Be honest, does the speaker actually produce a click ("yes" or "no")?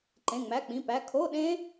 yes